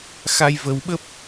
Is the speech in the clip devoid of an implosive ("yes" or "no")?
no